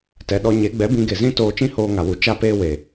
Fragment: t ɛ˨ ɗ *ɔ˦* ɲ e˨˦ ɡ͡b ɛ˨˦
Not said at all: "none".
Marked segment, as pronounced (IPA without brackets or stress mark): ɔ˧